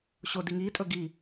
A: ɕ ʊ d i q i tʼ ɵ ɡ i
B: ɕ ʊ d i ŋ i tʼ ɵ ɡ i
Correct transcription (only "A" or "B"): B